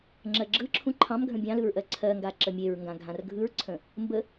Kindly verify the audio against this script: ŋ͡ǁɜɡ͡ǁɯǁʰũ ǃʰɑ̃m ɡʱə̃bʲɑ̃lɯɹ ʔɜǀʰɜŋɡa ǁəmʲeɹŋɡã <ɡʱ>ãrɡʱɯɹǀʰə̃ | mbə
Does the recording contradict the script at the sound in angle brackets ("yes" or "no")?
no